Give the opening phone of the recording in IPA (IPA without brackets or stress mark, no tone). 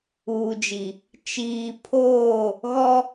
uː